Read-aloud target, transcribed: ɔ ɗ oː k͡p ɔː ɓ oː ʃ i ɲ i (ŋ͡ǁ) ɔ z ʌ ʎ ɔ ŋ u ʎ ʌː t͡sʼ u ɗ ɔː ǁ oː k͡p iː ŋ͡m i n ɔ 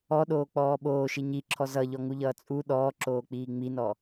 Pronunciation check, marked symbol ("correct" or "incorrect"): incorrect